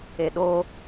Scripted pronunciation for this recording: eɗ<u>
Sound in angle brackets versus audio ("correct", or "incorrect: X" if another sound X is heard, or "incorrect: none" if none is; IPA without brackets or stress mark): incorrect: o